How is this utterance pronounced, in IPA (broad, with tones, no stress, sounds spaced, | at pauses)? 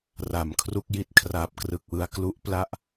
r a˨˩ m kʰ r u˥˩ k̚ j i˥˩ t̚ kʰ r aː˨˩ p̚ k r ɯ˨˩ k̚ w ɯ˧ a̯ k l u˥˩ ʔ p l a˥˩ ʔ